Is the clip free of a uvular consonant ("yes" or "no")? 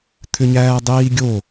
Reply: yes